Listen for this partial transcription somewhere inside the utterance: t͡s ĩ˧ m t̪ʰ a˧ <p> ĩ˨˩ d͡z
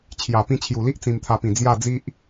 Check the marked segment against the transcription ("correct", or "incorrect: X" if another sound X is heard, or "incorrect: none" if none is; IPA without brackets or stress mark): correct